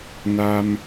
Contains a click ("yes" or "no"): no